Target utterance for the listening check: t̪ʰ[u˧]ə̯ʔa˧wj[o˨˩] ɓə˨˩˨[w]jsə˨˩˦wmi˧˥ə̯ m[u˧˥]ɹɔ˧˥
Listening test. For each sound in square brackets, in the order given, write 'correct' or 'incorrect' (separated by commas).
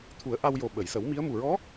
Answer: incorrect, correct, incorrect, incorrect